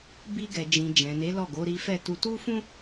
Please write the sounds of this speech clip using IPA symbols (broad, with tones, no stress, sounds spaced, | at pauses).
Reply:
b i˧ ɡ ɛ˨ d͡ʒ ĩ˨ d͡ʒ ɛ̃˨ n e˨˦ l ɔ˦˨ ɡ o˨˦ ɾ i˦ f ɛ˦˨ t u˧ t u˦ f ũ˦